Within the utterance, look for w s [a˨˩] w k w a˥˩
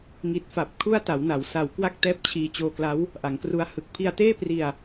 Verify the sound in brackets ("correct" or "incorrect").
correct